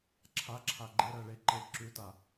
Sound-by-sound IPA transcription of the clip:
ǁʰ a ǁʰ a ɡ͡ǃ e ɾ ɜ ɭ e ǃ ɤ ǁ ʉ t a

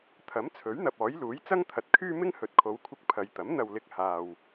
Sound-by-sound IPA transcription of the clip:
t̪ʰ ɐ˨˥ m t͡sʰ ɵ˨˥ ɥ n̪ ɐ˨ p̚ ɔː˨˥ j l uː˨˥ j t͡s ɐ˥ ŋ t̪ʰ ɐ˨ t̚ kʰ yː˥ m ɪ˥ ŋ h ɵ˨ t̚ kʰ o˨˧ w kʷʰ ɪ˧ k̚ pʰ ɐ˨ j t̪ ɐ˨˥ m n̪ ɐ˨ w l ɪ˨ k̚ h aː˨ w

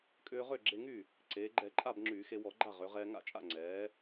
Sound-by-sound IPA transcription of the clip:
kʼ ʏː˧ ʁ ø˥˩ ɡ͡ǁ e˧ ŋ y˥˩ | ǀ eː˩˧ ɡ͡ǃ ɛ˧˩˧ ǃʼ a˥˩ b ŋ͡ǁ yː˧˩˧ x e˧ w ɔ˧˩˧ ɡ͡ǃ a˥˩ ʁ ø˩˧ ʁ ɛː˧ ŋ a̰˥˩ t͡ʃʼ a̰˥˩ ŋ͡ǀ ɛː˩˧

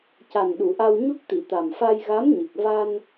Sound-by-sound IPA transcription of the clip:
c a˨˩ n ɗ u˨˩˨ ʔ a˧ w ɲ u˦˥ k̚ t̪ i˨˩˨ t̪ a˨˩ m f a˧ j ɣ a˧˥ m ɲ ɨ˨˩ k̚ v a˧ n

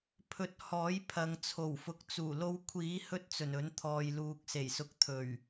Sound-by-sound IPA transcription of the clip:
pʰ ɵ˨˥ t̚ h ɔː˨˥ j pʰ ɐ˨ ŋ t͡sʰ o˨˩ w f ʊ˨ k̚ t͡s uː˨˩ l o˧ w kʷʰ iː˨˥ h ɵ˥ t̚ t͡s ɵ˨˩ n ɵ˨˥ n t̪ʰ ɔː˨ j l uː˨ k̚ s e˨˩ j s ʊ˨˥ k̚ t̪ʰ ɵ˨˩ ɥ

